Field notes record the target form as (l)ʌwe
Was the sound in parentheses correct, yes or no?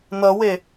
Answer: no